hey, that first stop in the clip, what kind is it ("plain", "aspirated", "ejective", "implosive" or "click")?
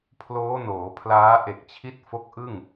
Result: aspirated